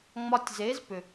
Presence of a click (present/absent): absent